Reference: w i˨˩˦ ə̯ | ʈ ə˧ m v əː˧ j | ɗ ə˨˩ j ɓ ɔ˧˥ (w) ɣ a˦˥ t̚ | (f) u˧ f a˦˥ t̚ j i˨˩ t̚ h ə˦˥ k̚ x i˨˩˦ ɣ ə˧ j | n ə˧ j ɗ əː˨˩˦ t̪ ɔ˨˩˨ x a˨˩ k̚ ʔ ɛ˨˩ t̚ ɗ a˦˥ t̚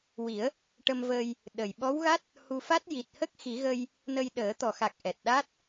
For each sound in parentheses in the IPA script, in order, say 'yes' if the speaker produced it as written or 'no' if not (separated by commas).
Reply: yes, no